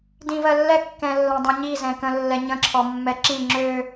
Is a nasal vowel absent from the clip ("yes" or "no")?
no